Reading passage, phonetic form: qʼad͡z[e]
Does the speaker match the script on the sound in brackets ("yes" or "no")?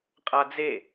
yes